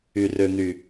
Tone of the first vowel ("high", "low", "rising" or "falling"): low